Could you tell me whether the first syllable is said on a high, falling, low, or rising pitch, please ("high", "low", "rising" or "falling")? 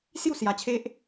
falling